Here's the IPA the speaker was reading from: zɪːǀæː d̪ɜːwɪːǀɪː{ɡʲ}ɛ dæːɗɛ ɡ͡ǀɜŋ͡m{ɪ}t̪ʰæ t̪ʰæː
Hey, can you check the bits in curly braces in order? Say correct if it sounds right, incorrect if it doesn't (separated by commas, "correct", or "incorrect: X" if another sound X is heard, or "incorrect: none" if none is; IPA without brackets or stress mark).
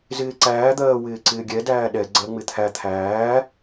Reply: correct, correct